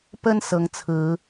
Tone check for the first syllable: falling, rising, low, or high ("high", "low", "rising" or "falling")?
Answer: high